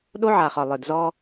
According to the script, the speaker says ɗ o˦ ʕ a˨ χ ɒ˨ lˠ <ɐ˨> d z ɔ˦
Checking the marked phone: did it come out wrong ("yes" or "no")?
yes